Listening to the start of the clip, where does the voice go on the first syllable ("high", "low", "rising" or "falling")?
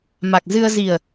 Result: low